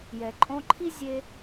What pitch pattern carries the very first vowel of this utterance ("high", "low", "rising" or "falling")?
low